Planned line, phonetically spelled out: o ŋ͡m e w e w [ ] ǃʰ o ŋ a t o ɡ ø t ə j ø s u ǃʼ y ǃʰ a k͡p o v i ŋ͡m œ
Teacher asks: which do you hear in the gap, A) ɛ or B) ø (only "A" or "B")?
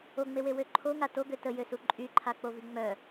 B